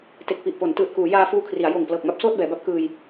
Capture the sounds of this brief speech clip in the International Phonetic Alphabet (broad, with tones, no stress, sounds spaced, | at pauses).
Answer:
t e˨˩ k̚ p i˨˩ ʔ p o˩˦ n t ɯː˨˩ t̚ k uː˩˦ j aː˧ f uː˧ kʰ r i˩˦ a̯ j oː˨˩ ŋ p l ɤː˨˩ k̚ m a˥˩ p̚ s oː˥˩ t̚ b ɛː˩˦ b a˦˥ p̚ k ɯː˧ j